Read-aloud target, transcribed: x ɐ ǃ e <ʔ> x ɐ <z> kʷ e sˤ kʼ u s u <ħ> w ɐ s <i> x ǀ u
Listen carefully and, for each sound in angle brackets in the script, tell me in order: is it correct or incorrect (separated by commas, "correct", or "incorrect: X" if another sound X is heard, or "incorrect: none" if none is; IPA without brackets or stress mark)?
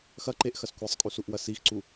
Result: correct, incorrect: s, incorrect: ʔ, correct